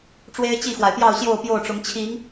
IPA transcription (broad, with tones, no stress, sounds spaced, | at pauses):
ʈ͡ʂ w e˦ ɪ̯ t͡ɕ i˥˨ x w a˩ ɪ̯ p j ɑ˥˨ ʊ̯ ɕ j o˥˨ ʊ̯ p j o˥˨ ʊ̯ ʈ͡ʂ ʊ˨˦ ŋ t͡ɕʰ i˨˦ ŋ